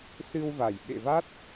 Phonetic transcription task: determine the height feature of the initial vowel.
high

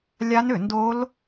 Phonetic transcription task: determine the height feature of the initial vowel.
low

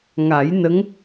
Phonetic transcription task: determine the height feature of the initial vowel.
low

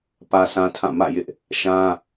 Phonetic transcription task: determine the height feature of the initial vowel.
low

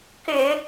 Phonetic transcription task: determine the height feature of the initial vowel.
high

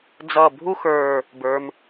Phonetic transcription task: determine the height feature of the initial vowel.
mid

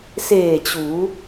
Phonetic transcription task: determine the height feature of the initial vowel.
mid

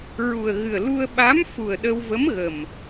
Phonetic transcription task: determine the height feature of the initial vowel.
high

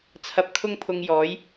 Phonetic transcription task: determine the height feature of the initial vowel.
low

